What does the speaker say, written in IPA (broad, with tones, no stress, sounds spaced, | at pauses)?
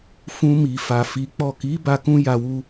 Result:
f ũ˧ m i˨ f a˨ f i˨˦ k͡p ɔ˦˨ k i˨˦ b a˧ k ũ˦ j a˧ w u˧